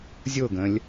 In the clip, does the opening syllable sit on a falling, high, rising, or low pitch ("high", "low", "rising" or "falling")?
falling